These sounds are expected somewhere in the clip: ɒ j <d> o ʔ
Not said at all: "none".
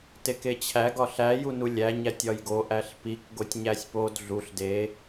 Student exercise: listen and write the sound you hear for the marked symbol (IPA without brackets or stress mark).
ɡ